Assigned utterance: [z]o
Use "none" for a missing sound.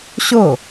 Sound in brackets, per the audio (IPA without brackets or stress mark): ɕ